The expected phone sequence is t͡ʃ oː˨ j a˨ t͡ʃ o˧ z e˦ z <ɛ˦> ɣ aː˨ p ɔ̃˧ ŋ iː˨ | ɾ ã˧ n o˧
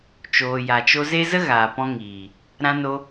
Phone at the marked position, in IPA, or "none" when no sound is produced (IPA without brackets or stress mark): ə˦